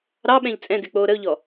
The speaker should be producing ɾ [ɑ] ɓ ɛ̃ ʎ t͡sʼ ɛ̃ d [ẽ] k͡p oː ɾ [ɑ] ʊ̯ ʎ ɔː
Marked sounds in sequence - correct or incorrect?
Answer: correct, incorrect: e, incorrect: ə

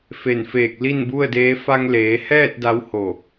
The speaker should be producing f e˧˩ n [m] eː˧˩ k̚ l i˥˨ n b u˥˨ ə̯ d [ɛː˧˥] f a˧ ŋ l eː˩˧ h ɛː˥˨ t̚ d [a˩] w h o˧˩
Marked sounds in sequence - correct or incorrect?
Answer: incorrect: f, incorrect: eː˧˥, incorrect: a˧˥

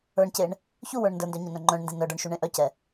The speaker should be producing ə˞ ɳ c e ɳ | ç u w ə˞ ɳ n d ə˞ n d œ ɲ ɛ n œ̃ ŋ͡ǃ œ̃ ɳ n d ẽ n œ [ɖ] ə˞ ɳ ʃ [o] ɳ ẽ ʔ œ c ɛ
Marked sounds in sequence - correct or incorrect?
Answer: correct, incorrect: u

